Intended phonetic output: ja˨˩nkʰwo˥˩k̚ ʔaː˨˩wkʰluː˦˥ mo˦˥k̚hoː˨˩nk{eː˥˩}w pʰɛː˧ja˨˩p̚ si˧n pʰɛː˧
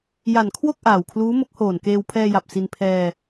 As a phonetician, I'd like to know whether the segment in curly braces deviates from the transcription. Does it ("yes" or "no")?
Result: yes